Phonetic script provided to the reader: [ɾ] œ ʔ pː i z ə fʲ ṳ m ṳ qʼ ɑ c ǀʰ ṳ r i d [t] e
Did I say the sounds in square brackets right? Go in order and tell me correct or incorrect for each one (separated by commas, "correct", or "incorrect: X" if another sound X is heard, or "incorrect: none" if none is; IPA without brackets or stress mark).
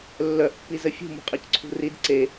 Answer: incorrect: lː, incorrect: ǀ